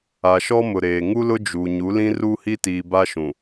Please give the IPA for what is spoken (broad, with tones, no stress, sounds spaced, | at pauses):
a˨ ʃ ɔ˦ m ʊ˨ ɾ eː˨ ŋ u˦ l ʊ˦ d͡ʒ u˨ ɲ u˨˦ l ĩ˦ r uː˦ h i˦ t iː˨ b a˦ ʃ ũ˨